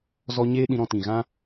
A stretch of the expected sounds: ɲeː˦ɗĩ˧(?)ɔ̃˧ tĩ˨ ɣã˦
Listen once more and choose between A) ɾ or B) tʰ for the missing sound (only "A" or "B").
A